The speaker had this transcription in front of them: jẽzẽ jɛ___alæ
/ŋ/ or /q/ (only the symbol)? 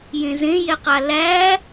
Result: q